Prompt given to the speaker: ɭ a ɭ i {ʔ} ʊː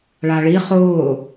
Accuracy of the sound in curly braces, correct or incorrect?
incorrect